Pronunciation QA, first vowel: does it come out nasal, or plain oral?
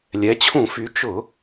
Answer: oral